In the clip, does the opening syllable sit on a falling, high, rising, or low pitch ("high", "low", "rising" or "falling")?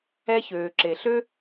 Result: high